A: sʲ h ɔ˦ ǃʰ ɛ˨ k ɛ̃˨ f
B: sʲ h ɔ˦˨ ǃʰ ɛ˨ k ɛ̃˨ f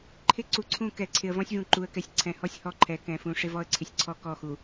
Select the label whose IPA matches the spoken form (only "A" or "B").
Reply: B